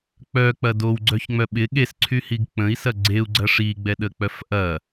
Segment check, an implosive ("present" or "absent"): present